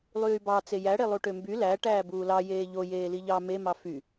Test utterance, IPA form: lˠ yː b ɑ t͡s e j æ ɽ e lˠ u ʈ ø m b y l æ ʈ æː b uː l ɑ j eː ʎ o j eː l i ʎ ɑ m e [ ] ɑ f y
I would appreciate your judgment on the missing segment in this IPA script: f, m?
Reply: m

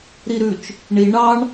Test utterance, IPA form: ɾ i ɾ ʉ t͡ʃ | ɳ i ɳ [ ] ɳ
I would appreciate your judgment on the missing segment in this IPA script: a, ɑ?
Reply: ɑ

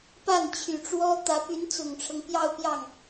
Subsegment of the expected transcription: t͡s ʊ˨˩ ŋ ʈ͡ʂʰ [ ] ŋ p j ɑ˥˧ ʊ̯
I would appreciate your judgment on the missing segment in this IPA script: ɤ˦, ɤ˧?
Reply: ɤ˦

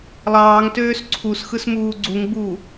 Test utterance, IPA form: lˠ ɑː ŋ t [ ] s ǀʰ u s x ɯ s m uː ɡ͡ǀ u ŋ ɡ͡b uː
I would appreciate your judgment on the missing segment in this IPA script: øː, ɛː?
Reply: øː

